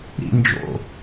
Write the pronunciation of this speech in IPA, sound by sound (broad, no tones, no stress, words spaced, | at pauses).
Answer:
ɾḭ nd͡ʒo̰